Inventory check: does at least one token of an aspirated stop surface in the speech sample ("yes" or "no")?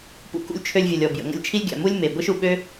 yes